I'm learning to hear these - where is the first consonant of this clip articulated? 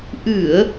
throat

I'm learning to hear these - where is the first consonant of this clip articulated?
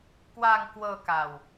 velum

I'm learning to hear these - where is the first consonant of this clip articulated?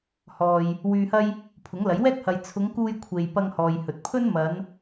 throat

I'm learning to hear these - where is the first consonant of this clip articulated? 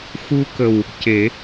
velum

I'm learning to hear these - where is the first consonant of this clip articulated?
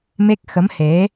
lips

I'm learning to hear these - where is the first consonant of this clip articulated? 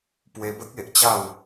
lips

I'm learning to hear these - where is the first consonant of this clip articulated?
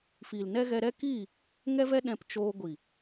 lips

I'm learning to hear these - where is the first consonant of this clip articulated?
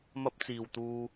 lips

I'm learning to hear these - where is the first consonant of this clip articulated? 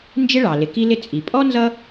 tongue tip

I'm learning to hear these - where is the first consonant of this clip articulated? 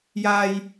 palate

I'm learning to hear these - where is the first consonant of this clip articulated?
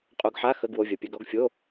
uvula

